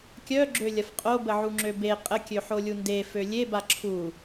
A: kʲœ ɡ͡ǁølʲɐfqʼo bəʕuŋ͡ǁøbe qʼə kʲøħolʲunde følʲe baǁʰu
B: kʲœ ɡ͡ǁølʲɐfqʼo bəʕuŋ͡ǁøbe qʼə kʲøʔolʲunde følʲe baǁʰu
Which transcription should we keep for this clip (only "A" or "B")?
A